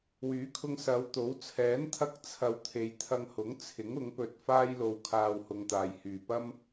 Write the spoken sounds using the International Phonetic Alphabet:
w yː˨˥ kʰ ʊ˧ ŋ s ɐ˨˧ w t̪ o˨˥ w t͡sʰ ɛː˨˥ n t̪ʰ ɐ˧ k̚ t͡sʰ ɐ˨˧ w t̪ʰ e˨ j t̪ʰ ɐ˧ ŋ h ʊ˨˥ ŋ t͡sʰ ɪ˨˥ ŋ ʊ˨˥ ŋ p ɵ˧ t̚ f aː˥ j l o˧ w kʰ aː˧ w h ʊ˨˧ ŋ t̪ aː˨ j h yː˨ p ɐ˥ m

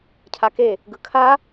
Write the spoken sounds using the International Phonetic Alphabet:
cʰ a k e | ɡ ɯ kʰ a

